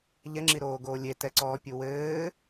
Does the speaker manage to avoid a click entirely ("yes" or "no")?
no